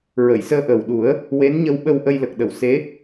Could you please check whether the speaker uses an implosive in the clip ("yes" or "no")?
yes